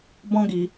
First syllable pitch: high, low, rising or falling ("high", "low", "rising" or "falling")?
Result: high